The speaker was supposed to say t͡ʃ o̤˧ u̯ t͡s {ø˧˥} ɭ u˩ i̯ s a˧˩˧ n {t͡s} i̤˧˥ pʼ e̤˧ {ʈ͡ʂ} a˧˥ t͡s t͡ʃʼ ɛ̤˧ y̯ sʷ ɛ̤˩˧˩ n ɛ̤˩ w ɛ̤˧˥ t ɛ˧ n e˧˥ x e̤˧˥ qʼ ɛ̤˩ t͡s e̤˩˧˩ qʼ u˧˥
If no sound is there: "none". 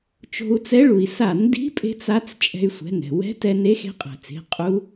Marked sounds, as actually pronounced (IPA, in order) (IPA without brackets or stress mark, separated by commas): ɛ˧˥, d, t͡s